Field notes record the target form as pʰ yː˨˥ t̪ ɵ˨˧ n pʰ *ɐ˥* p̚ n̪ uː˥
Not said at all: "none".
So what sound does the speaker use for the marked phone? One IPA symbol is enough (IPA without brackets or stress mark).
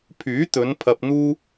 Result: ɐ˧